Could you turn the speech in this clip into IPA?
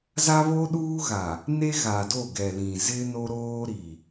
z a˦ β o˦ ɗ uː˦ ɣ a˨ | n e˦ ɣ a˨ d o˦˨ ɡ ɛ˨ l ĩ˨ z ɪ˦ n o˦ ɾ oː˦ ɾ i˨

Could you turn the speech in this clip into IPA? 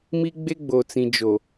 m i˦ ɡ͡b e˦ ɡ͡b o˨ t͡s ĩ˨ d͡ʒ o˨

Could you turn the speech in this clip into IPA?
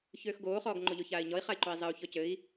ç øː x ɡ oː χ ɔː ɡ ŋ͡ǃ o ʎ o ç aː i̯ ɲ ɔ i̯ χ a i̯ ǃ o i̯ zˤ ɘ u̯ ç ɔ c ɘ i̯

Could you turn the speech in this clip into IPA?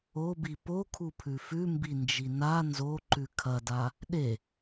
o b i p o kʰ u pʰ ʉ f ʉ m b i n d͡ʒ i n a n z o ǃ ʉ kʰ ɐ d a | ɗ e

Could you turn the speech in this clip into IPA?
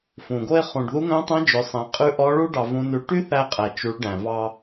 f ũ˩ ɡ o˧ e̯ χ ũ˩ ɖ ð u˧˥ ŋ œ̃˧˥ tˤ æ̃˧˥ d͡ʒ ɵ˩˧ sˤ æ̃˩˧ qʼ ʉ˧˥ ʔ ɔ˧˥ ɭ u˥ ɖ ɑ˧ v ũ˧˥ n ʉ˧˥ ʈ y˥ θ æ˧ qʼ æ˩ t͡ʃ u˩˧ ɭ ɖ æ̃˩ v ɑ˧

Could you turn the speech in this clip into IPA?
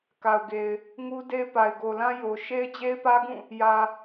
k a˨ ʊ̯ ɡ e˨ ɪ̯ | ŋ u˦ d e˦ ɪ̯ p a˨ ɪ̯ ɡ o˨ l ã˦ j o˨ ʃ e˦ ɪ̯ d͡ʑ e˦ ɪ̯ p ä˦ ɡ ũ˦˨ | j ä˨

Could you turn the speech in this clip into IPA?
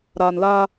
ɾ aː˨ n l aː˦

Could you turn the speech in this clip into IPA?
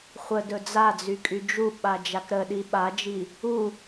χʷ ə d ɵ d͡z a d͡z y kʼ y d͡ʒ u ɓ a d͡ʒ a k ɾ ə ɗ i ɓ a d͡ʒ i | u

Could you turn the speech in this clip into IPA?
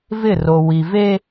v ɪ˦˨ r o˨ w i˨ v e˦

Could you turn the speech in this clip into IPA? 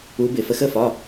u˧˥ b ɪ˩˧ f ə˧˥ x ə˧˥˧ f ɒ˧˥˧

